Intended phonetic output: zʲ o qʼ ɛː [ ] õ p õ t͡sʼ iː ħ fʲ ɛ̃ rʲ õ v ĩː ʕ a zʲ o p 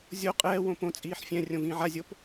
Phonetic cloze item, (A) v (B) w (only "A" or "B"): B